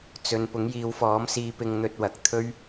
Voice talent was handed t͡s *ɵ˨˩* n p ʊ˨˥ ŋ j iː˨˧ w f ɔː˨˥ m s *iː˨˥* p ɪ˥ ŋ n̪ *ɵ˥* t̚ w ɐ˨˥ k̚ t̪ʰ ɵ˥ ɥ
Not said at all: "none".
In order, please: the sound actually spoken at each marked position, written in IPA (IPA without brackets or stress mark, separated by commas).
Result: ɵ˨, iː˥, ɵ˥